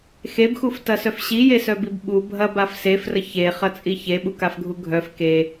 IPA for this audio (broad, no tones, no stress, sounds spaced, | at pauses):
x e b x u f t ɐ s œ f ɕ i j e s œ b i b ɓ u bʱ ɐ b a f s e f r ə ç e χ ɐ t͡sʼ i ç e ɓ u k a f ɡʱ u ɡʱ œ f k e